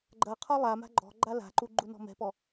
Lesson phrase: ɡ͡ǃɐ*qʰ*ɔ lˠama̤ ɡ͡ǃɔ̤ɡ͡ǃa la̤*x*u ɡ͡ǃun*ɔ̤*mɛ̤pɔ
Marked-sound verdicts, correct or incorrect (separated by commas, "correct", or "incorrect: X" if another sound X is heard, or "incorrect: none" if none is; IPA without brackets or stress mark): correct, incorrect: ǃ, correct